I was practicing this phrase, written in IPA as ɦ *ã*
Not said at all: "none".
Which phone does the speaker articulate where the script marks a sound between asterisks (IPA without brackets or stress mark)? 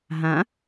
ã